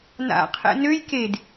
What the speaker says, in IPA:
na̰qʰɛ̰ nøj ked

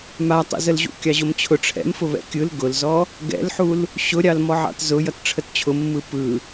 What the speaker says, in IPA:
matˤḛzəlʑṵ kʲɑʑʊmt͡ɕʰʊ ʈ͡ʂʰɛ̰mfʊ βɛ̰kʲɯl ɡʊlzɔ | ɡɛ̰lħul | ɕʊɾʲɑlmɔ ʕɑ̰tzʊ jʌtʈ͡ʂʰətt͡ɕʰʊ mːɯpɯ

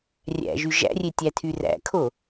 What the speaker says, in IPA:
rʲæ̰ʒy ʒæ̰rʲetʲætʰy ræ̰kʰo

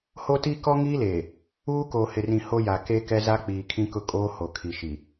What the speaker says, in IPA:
ho˦ti˦ kɔ˦ŋiː˦leː˨ | uː˦ koː˨hɪ˨rĩ˨ ho˦ja˨ ke˦kɛ˦za˦k͡piː˨ kʰĩ˦kʊ˦ kʼoː˦ ho˨kʰi˨ ʃi˨

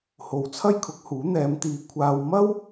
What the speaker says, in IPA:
ho˨wt͡sʰɐ˥jkʰʊ˨˥k̚huː˨˥ n̪ɛː˨˧mt̪iː˨ kʷʰaː˧w mɐ˥w

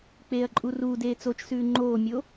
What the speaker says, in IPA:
k͡peːɐ̯ǃʼuruːdeː t͡sot͡ʃsʉː ŋ͡ǃoːmʲo

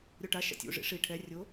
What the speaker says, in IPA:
ɾʲoʈa ʃa̰tʲṵ ʐḭʂi ʈʰɛ rʲo

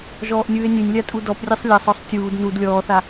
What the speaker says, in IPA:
ʒɔːʔnʲɯːe̯nʲenʲlʲa tʼudɔprʲɛsˤ lʲasˤɔsˤ tʲuːd nud lʲɔːθa

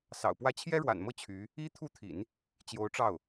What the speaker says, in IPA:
sɑ̰˨˩ʊ̯pwä˥˩ t͡ɕʰjɛ˥ɻwa̰˨˩nmɤ˥˩ t͡ɕʰy˧˥ | i˥ t̪ʰu˥˩t̪ʰḭ˨˩˦n | t͡ɕjo˧˥ʊ̯ʈ͡ʂɑ˥˩ʊ̯

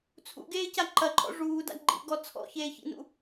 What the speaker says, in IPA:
t͡sʰṵɡeːca ǃɐǃʼɔ̰ ʐuːda̰ ɡ͡ǃḭɡɔ t͡sʰɔ̰çeːçḭnṵ

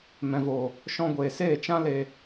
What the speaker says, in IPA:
mɛ̃˨voː˨ | ʃɔ̃˧ɡʷeː˨ seː˦˨t͡ʃã˦le˧

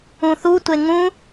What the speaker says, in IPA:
ũθutʷe ŋũ

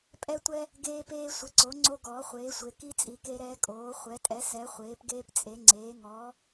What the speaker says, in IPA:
pʼɛ˦tʷɛ˦ | ɡeː˦peː˦ sʷɪ˩˥ǀo˩˥ ŋ͡ǀo˦ ɡɔː˩˥χʷeː˩˥sʷe˩˥ ki˦ t͡sʼi˩˥ke˦ɾɛː˦ kʼoː˩˥ χʷɛ˩˥tʼɛ˩˥ sɛ˩˥ χʷeː˩˥pɡeː˦pt͡sʼe˩˥ŋ͡ǀeː˩˥ ŋɔː˩˥

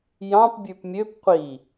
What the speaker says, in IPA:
jɑ̃p bʲʉpmʲøp qʷi

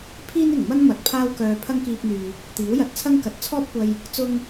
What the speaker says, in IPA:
pʰiː˥nɪ˨˩ŋmɐ˥n mɐ˨t̚pʰaː˥wkœː˧ pʰɐ˥ŋkiː˧p̚n̪yː˨ | t̪iː˨˥wjɐ˨˥t̚t͡sʰɐ˥ŋkɐ˨˥t̚ t͡sʰɔː˥p̚kʷɐ˧j | t͡sʊ˥ŋ

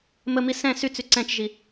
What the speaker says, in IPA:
məmi sɛ̃ syt͡sy ǀɛ̃t͡ʃʒi

